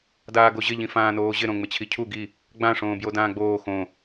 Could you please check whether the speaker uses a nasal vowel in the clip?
yes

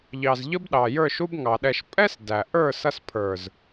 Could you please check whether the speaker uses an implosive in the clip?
yes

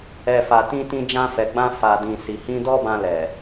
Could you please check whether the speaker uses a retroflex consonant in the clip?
no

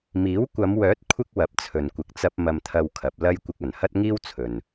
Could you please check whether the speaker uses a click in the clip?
no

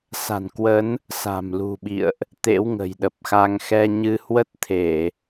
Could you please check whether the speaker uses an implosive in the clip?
yes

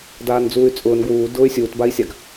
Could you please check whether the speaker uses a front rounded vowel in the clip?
yes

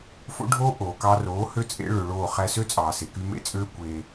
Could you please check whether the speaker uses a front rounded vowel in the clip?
yes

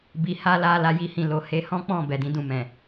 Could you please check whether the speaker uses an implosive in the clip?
no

